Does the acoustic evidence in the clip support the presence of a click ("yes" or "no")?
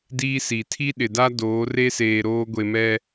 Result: no